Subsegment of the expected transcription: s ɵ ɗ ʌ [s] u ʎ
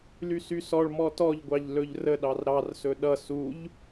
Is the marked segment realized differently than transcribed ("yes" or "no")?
no